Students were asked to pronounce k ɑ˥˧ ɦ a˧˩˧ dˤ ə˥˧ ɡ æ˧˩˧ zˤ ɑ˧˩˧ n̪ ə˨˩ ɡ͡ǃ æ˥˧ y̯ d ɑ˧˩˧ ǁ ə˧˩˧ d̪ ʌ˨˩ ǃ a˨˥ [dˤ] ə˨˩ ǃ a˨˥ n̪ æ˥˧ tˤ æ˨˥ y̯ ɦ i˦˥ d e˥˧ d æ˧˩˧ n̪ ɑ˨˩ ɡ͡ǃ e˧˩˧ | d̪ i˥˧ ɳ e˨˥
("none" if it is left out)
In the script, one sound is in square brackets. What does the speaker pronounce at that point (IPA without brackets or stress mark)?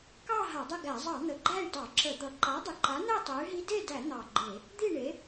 dˤ